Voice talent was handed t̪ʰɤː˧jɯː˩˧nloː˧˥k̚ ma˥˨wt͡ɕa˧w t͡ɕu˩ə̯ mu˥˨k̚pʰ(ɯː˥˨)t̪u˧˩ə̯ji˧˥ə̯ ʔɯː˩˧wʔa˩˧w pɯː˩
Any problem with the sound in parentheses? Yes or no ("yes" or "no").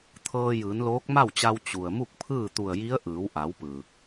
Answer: no